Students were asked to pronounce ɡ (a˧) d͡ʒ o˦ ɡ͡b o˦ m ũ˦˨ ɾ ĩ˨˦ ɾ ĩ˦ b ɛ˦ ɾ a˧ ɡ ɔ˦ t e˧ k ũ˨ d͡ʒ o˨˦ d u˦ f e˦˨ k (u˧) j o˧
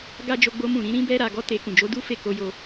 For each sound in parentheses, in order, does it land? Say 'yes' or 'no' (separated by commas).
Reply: no, no